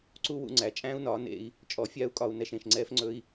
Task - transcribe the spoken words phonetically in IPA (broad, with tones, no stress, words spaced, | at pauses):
ǀu˦wṵ˧ ŋ͡ǀæ˨ t͡ʃʼæ̃ː˦u̯nɒː˨˦ nḛ˧i̯ | t͡ʃʼɔ˨˦fʲaː˦u̯kʼɒ˧u̯ nɛ˧ʃẽ˨ʃŋ͡ǀɛː˦fŋ͡ǀɵ˦i̯